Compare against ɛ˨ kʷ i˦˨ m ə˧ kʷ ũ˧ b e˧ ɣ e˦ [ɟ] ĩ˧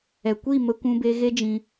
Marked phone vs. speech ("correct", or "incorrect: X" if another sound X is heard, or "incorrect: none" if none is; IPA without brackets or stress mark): incorrect: d͡ʒ